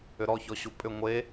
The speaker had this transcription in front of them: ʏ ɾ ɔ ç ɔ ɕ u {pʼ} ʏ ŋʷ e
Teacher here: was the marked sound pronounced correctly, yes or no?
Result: yes